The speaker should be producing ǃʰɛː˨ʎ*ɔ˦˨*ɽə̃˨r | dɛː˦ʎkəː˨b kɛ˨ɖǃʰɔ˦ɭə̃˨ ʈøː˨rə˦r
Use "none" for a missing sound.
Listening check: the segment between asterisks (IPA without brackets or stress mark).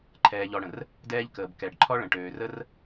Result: ɔ˨